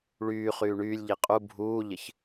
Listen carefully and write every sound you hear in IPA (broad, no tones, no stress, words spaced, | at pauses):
ɭyːχyː ɳyːlʲʎi qʼu bʱuːʎɪç